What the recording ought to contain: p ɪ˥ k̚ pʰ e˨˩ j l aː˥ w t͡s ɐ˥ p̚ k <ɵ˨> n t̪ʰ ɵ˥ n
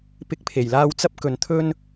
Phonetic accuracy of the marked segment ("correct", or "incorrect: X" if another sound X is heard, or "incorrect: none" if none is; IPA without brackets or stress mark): correct